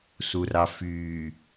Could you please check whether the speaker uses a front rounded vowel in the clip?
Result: yes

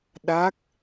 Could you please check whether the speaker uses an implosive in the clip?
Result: yes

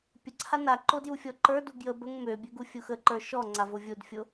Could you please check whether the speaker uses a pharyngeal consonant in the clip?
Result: no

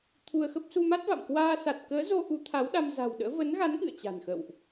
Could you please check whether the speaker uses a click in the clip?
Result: no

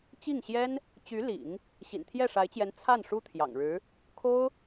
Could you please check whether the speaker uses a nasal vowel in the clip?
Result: no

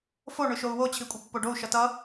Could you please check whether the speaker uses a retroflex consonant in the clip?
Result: yes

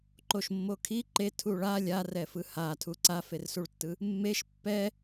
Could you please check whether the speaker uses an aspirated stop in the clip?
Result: yes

